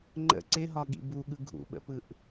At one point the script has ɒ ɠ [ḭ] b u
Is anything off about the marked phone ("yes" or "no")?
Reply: no